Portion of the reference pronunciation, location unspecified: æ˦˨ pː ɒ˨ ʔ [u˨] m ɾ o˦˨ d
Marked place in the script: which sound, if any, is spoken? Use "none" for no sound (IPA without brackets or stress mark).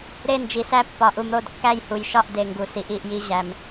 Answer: u˨